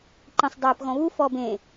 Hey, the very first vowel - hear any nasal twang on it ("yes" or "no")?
yes